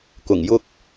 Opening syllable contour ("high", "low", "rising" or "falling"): low